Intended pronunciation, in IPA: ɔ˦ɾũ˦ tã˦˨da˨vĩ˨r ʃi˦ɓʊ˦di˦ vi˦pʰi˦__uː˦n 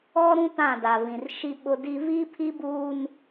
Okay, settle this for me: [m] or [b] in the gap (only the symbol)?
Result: b